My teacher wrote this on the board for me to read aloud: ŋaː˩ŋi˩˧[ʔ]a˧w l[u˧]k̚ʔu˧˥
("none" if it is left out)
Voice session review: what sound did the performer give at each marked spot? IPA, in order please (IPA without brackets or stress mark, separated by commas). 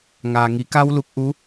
k, u˧